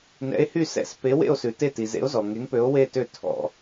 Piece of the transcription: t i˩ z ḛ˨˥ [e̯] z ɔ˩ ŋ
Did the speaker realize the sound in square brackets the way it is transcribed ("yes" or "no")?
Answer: no